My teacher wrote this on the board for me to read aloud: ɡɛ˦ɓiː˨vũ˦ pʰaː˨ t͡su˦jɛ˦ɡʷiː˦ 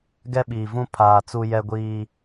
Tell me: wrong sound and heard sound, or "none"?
none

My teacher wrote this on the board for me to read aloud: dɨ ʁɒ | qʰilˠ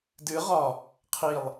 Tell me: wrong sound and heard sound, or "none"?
none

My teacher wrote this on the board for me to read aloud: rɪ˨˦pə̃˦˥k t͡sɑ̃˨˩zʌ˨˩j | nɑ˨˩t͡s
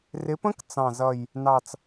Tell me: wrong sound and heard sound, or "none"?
none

